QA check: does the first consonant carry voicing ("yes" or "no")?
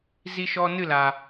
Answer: yes